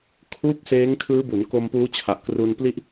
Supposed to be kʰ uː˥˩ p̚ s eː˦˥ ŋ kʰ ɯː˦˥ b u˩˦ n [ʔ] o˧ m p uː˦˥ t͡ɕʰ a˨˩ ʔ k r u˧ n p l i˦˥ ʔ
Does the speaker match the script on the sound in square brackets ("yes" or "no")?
no